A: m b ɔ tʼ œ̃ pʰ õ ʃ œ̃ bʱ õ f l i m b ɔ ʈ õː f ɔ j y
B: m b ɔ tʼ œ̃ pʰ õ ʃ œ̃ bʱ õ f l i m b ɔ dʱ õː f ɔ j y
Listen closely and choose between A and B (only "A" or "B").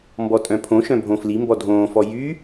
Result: B